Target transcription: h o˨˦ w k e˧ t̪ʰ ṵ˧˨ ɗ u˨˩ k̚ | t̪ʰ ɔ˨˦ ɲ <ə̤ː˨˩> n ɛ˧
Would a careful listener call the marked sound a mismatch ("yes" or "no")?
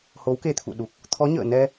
yes